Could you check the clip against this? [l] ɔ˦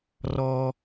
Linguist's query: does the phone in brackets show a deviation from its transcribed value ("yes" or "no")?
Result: yes